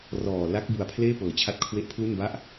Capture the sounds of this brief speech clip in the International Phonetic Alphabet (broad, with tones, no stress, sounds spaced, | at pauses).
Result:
r ɔː˨˩ l a˦˥ k̚ b u˨˩ a̯ pʰ l eː˥˩ p ɤː˩˦ t͡ɕʰ a˦˥ t̚ kʰ w e˦˥ ʔ pʰ l u˥˩ n b a˥˩ ʔ